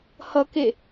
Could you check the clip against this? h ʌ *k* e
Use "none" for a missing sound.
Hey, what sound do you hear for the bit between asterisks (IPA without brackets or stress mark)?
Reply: k